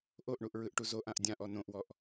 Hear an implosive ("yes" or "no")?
no